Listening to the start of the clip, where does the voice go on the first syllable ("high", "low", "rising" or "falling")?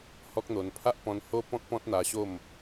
high